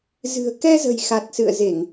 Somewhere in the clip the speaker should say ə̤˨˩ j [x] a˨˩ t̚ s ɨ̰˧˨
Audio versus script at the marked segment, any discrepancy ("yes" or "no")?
no